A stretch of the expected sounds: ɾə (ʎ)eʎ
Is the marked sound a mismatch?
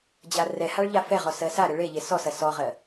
yes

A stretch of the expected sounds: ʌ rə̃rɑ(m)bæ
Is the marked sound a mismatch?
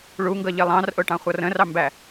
no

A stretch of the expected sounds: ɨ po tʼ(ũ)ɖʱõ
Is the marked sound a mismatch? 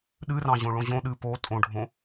yes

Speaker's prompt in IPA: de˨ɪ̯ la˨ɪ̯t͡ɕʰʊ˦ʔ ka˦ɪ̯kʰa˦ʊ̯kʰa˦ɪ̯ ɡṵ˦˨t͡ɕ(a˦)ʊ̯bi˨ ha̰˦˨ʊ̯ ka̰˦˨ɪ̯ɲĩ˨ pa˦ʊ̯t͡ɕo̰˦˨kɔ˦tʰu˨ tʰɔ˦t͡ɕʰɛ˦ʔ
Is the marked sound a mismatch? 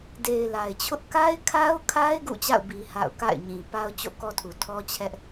yes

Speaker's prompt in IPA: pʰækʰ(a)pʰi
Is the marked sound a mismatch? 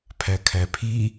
yes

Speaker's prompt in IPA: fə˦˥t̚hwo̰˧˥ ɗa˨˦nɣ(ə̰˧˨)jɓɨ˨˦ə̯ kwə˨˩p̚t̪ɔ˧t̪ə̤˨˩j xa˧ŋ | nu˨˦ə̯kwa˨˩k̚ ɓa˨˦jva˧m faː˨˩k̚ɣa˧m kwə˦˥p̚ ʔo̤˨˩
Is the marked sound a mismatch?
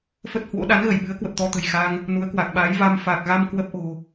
yes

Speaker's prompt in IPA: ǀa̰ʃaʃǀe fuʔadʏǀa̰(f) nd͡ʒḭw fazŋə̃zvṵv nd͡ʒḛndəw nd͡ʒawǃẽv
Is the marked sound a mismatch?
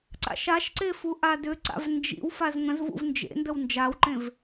yes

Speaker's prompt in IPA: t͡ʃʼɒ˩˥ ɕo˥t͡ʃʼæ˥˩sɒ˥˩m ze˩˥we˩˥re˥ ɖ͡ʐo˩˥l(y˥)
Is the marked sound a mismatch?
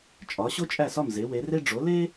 yes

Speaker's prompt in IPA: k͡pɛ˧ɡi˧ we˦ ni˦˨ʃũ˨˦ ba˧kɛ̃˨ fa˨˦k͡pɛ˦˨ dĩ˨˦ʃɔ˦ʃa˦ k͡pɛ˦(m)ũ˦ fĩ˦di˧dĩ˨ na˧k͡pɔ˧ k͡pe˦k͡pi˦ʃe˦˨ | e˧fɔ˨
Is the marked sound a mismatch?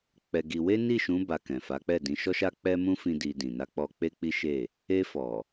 no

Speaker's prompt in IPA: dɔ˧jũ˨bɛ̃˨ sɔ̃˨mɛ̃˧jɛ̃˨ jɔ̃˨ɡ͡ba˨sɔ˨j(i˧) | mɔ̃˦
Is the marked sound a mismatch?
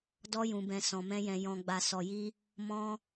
no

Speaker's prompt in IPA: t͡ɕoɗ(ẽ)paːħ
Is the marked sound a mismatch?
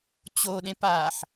no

